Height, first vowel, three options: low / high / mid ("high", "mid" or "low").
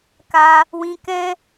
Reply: low